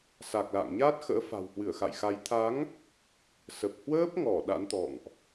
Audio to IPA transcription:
s a˨˩ k̚ l a̰ː˧˨ ŋ ɲ aː˦˥ t̚ x ə̰ː˧˥ f a̤˨˩ w h w ɨ˧˩ ə̯ x a̰˧˨ j x a˨˦ j t̪ʰ a˨˦ ŋ | s ə˨˩ p̚ h w əː˦˥ p̚ ŋ ɔ˧˩ ɗ a̰˧˥ n t̪ ɔ̰˧˨ ŋ ʔ

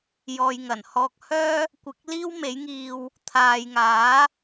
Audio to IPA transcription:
j ɔː˨ j ŋ ɐ˨˩ n h ɔː˧ k̚ h œː˥ | kʷ ɪ˨˥ k̚ l iː˥ w m e˨˥ j ŋ iː˧ w | t̪ʰ aː˨ j ŋ aː˨˥

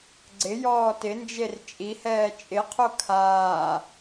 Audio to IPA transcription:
ɡ͡ǀ ɪ j ɔː t ɪ n d͡ʒ e r t͡ʃʼ i h ɛː t͡ʃʼ ɪ qʰ o kʰ aː

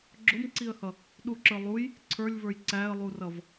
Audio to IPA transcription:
ɡ͡ǁ ʊ m ǀ i ə̯ h ʌ | ɗ u ǁ ə˞ lˠ u j | ǀʰ ə˞ lʲ v ə˞ j ǀ æ ə̯ lˠ u r ʌ v

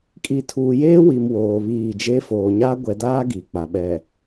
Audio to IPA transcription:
kʼ i˨ tʰ uː˨ j eː˦ w i˨ m w oː˨ β iː˦˨ d͡ʒ e˦ f oː˨ ɲ a˦ ɡʷ ɛ˨ d aː˦ ɡ i˨ k͡p a˨ ɓ ɛ˨

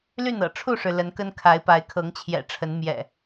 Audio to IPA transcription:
l y˥˨ n ɤ̰˨˩ ʈ͡ʂʰ u˥˨ ʂ ɻ̩˩ l ə˨˦ n k ə˦ n kʰ a˨˦ ɪ̯ p a˨˦ ɪ̯ kʰ ɤ˨˦ ŋ t͡ɕʰ j ɛ̰˨˩ ʈ͡ʂʰ ə˨˦ n m j ɛ̰˨˩

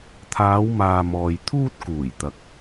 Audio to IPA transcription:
t̪ʰ aː˨˧ w m aː˨ m ɔː˨ j t̪ʰ uː˥ t̚ k uː˨˩ j t̪ ɐ˨ k̚

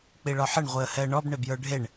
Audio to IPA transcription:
k͡p i ɭ ɒ ħ ə ɳ ʁʷ i ə̯ h ɛ ə̯ ɳ ɔ b ɳ e b j ə˞ ɖʱ e ɳ

